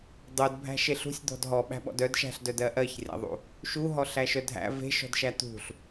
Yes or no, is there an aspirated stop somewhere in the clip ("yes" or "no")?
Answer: no